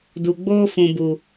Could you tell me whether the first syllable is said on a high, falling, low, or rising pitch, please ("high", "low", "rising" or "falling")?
low